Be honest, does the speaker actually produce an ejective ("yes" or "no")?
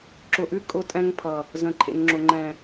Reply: yes